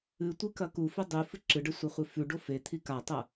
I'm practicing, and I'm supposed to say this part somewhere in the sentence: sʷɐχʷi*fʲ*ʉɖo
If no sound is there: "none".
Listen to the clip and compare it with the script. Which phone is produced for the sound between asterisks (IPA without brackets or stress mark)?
f